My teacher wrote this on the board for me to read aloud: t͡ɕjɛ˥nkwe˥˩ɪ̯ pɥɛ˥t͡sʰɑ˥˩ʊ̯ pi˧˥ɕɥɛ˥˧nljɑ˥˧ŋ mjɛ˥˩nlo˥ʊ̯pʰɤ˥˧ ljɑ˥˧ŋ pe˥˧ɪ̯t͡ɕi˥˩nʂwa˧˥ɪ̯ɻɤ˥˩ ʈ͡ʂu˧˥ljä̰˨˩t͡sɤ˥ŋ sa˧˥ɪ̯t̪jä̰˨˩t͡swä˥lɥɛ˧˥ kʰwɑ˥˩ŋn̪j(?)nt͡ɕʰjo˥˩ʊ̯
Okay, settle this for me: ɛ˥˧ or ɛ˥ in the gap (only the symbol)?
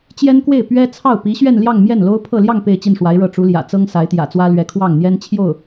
ɛ˥